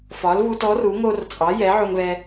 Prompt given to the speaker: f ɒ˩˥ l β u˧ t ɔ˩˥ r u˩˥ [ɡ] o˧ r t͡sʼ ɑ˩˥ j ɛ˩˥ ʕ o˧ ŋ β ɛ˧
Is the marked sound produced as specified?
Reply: no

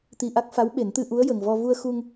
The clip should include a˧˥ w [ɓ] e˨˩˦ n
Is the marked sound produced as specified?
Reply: yes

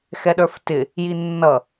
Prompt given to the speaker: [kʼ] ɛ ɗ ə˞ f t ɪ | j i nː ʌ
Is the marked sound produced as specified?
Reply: no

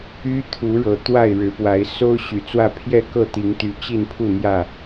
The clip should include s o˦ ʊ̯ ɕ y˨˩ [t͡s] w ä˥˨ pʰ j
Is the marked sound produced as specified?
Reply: yes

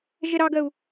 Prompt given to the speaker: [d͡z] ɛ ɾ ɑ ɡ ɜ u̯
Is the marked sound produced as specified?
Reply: no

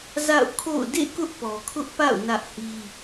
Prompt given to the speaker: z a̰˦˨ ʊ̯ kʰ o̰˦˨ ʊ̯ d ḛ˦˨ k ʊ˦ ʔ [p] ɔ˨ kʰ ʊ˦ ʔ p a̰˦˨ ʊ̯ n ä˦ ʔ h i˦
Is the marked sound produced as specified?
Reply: yes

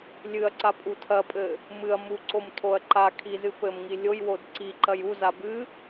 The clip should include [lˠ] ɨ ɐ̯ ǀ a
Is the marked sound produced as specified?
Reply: no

